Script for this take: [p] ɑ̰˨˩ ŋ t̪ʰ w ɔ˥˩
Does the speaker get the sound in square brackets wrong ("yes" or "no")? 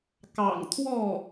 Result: yes